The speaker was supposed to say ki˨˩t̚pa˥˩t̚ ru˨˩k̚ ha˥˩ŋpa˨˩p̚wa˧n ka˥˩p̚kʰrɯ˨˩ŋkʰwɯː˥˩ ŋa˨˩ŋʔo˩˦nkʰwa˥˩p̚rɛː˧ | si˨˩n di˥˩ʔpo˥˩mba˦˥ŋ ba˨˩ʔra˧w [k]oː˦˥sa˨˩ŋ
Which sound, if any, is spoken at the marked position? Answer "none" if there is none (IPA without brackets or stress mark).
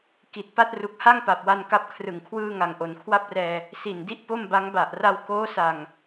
k